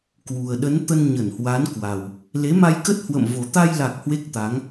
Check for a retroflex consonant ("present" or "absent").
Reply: absent